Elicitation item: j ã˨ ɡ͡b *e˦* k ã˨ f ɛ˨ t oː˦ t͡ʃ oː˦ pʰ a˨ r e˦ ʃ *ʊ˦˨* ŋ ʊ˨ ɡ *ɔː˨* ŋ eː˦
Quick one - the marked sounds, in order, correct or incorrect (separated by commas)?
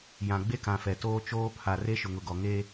correct, incorrect, incorrect